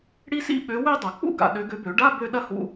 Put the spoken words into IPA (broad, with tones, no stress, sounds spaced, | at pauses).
ɽ i˥ s ḭ˥ ɓ ø˨˦ w ø˥˧ dˤ ɐ˨˩˦ k͡p ṵ˥˧ ɡ a̰˨ ɗ ø˨˦ ɡ ø˨˦ b ø˨˩˦ ɖ a˧˥˧ b ø˥˧ ɗ ɐ˥ h ṵ˧˥˧